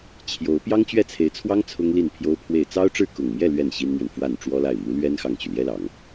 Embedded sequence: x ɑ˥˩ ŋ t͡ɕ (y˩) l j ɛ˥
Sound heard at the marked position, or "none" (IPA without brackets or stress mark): y˩